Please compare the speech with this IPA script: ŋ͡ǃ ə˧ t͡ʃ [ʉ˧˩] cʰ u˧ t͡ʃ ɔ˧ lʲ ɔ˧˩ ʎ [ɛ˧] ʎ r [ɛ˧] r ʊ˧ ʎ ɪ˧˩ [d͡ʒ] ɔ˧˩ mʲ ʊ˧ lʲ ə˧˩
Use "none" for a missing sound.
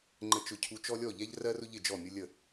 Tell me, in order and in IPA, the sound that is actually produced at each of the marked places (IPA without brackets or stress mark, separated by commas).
ʊ˧˩, ɛ˧, ɜ˧, d͡ʒ